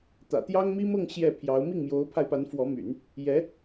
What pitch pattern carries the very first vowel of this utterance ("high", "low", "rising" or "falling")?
low